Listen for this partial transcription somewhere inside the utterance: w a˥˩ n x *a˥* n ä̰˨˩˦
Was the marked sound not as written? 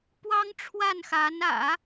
yes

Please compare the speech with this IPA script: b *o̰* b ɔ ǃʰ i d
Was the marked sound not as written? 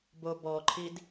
yes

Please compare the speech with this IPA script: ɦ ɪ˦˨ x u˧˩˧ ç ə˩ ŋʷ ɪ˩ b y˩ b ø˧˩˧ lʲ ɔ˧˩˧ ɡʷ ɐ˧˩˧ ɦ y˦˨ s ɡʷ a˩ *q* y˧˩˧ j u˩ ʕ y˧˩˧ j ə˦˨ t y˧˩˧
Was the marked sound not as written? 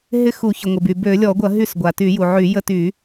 yes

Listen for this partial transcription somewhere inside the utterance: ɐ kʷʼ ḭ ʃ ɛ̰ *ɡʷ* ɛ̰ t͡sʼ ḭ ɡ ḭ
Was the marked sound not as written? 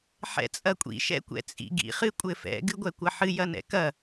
yes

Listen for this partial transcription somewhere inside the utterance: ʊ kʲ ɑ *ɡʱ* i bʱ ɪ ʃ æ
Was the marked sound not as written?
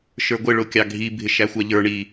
no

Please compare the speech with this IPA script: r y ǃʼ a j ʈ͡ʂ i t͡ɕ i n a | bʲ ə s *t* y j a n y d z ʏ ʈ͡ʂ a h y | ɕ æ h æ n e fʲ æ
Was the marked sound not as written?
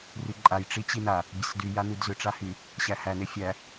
yes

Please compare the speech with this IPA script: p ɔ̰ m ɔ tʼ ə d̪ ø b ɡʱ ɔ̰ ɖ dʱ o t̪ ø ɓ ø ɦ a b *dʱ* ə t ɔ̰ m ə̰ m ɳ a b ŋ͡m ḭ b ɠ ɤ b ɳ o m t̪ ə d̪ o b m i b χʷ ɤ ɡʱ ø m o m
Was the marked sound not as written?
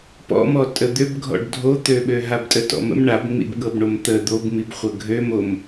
yes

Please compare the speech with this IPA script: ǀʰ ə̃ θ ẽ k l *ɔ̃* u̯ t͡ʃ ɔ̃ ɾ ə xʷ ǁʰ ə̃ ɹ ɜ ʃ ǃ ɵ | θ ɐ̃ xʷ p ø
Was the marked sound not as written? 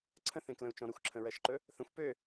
yes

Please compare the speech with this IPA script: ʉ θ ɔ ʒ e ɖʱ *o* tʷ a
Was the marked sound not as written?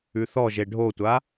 no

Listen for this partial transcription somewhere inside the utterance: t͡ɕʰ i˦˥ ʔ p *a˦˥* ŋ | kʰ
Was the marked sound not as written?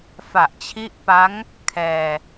no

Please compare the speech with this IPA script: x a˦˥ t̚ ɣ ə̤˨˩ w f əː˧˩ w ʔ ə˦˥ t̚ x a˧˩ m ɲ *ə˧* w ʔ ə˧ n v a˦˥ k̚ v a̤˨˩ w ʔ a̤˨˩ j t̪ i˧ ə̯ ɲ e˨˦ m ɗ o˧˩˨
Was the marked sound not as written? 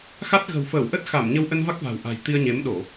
no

